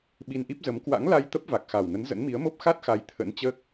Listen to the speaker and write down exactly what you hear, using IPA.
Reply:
ɓ i˧ n ʔ i˦˥ p̚ z ə˨˦ m k w a̰˧˥ ŋ l a˧ j t̪ ə˦˥ p̚ v a˨˩ k̚ x a˨˩ w n ə˨˦ n z ə̰˧˥ n m i˨˦ ə̯ m o˦˥ p̚ x a˦˥ t̚ x a˨˦ j t̪ʰ ə̰˧˥ n t͡ɕ əː˦˥ k̚

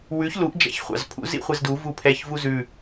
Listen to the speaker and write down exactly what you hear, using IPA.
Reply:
w ʉ ç l u ʔ d͡ʒ æ̰ ç χʷ ɑ̰ z pʰ ṵ z ḭ χʷ ɛ z d u v u pʰ ɛ ç v u z ʉ

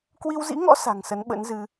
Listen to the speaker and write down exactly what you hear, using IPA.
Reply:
k w i˧ w z ḭ˧˥ ŋ ɔ̰˧˥ s a̤˨˩ ŋ s ə˨˦ n ɓ ə̰˧˥ n z ɨ˧

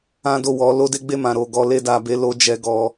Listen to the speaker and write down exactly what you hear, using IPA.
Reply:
ã˦ d o˦˨ w ɔ˨˦ l o˦ d e˦ ɡ͡b e˦˨ m ã˨ ɾ o˨ ɡ ɔ˨ l e˧ d a˨ b e˨˦ l o˧ d͡ʒ ɛ˧ ɡ ɔ˧

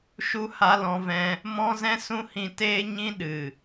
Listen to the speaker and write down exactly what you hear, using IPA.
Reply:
ʃ u˦ h a˧ l ɔ̃˧ v ɛ̃˧ | m ɔ̃˦ z ɛ̃˦ s ũ˦ h ĩ˧ t eː˦ ɲ ĩ˦ ɗ ɨ˨

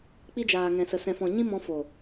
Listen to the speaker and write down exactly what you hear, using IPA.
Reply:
k͡p i˧ d͡ʒ aː˨ ŋ ɛ̃˨ s ə˨ s ɛ̃˨ f ɔ̃˨ ɲ ĩ˧ m ɔ̃˧ f o˨

